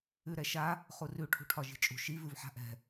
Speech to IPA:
ʉɾɛʃa | χurʉ ʈʰṳʈʰɒʒi̤t͡ʃʼṳ ʃi vʉvħa̤ʔɛ̤

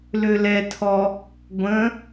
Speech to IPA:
lølɛtʰɔ | ɡʷə̃

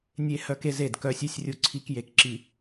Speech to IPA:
nʲe˦ hœ˦ke˦z e˨dkœ˦sʲ i˦sʲrʲu˦ǀʰi˦k je˨kǁi˨

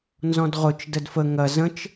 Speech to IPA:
nzɔ̃dʁʊt͡ʃ dədfə ŋɐ zə̃t͡ʃ

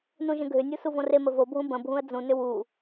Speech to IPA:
nũʒə̃ɡʱʏnʲu suvõremə vobʱũ bə̃bʱũə̯ d͡zũnʏ wu

